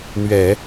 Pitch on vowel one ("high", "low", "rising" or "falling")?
low